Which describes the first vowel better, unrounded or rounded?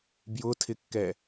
rounded